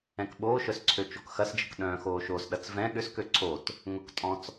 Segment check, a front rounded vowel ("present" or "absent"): present